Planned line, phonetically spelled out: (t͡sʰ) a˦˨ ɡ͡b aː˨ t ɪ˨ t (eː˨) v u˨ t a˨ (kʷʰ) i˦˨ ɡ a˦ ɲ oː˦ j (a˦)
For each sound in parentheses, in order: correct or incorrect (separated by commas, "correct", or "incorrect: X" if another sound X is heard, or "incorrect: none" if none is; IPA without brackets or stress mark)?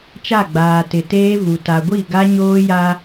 incorrect: t͡ʃ, incorrect: eː˦, incorrect: ɡʷ, correct